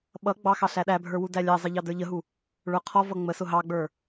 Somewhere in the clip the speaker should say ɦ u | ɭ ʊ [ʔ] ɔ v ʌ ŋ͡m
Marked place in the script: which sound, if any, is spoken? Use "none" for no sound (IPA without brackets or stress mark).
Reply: qʰ